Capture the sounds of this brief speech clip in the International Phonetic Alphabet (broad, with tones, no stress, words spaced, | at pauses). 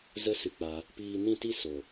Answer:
zə˦sɨ˧k͡pa˧ | piː˧nĩ˦˨ti˦ so˨